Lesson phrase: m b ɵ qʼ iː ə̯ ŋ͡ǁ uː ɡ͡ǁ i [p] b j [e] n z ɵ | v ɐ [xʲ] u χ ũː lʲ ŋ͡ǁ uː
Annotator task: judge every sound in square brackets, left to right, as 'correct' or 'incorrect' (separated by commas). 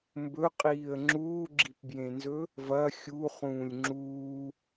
correct, incorrect, correct